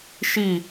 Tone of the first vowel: falling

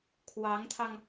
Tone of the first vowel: rising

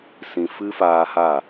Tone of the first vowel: low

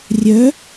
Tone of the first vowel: rising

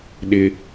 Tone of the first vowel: high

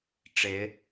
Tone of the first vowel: rising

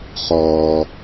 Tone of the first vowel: low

